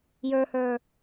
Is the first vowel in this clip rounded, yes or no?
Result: no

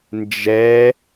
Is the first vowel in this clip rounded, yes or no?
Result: no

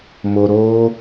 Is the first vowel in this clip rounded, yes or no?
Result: yes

